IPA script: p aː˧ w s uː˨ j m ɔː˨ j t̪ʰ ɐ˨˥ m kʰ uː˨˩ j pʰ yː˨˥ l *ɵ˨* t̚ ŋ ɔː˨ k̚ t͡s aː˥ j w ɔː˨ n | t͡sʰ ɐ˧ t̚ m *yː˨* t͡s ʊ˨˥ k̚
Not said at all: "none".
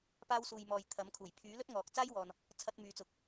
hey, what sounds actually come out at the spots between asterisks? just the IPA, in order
ɵ˥, yː˨

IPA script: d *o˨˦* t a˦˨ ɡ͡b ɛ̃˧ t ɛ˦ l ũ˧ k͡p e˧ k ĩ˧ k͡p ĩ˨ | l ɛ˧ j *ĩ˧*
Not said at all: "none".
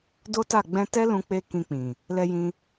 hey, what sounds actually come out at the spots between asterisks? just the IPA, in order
o˦, ĩ˧

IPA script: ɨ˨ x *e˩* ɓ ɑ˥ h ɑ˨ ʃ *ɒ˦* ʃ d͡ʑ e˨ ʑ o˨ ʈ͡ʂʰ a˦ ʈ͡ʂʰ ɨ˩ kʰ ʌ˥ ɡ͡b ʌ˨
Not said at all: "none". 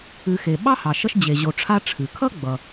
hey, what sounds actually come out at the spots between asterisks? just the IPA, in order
e˩, ʌ˦

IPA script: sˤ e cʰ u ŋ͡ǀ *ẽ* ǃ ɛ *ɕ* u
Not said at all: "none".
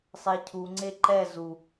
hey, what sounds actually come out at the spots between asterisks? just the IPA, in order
e, z

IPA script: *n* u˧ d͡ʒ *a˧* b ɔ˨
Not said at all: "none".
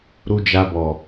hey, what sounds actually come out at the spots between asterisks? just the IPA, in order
ɾ, a˧

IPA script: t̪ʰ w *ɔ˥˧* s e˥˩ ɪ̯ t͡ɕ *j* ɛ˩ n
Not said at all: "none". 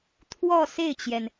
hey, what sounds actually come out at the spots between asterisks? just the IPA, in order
ɔ˥˧, j

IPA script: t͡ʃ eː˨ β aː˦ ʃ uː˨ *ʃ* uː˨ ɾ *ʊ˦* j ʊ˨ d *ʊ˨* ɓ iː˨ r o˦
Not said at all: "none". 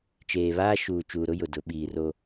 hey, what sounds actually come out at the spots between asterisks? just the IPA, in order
t͡ʃ, ʊ˦, ʊ˨˦

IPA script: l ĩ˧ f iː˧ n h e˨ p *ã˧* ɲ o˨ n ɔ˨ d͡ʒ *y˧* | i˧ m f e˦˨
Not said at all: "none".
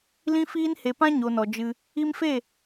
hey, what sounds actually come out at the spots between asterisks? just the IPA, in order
ã˦, ɨ˧

